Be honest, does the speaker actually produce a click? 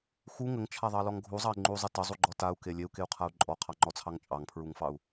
yes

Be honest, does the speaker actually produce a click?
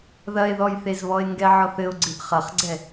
yes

